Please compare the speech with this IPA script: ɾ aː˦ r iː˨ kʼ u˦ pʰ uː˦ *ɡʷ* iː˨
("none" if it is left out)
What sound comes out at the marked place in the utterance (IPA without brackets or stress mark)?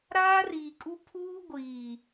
ɡʷ